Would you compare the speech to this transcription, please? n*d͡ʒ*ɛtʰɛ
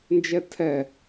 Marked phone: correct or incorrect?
correct